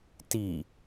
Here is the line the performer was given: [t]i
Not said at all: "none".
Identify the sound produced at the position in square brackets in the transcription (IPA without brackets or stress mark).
t